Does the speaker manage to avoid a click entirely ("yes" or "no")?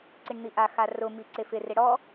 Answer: no